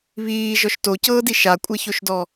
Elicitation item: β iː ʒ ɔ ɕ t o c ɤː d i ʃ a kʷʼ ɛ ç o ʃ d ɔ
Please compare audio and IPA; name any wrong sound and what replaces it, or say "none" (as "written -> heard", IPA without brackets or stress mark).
ɕ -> ʃ